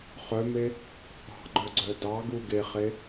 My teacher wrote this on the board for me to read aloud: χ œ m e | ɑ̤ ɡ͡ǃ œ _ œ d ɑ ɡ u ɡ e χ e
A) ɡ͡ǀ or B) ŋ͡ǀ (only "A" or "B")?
A